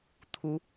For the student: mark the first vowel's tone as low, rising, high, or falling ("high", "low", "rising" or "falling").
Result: high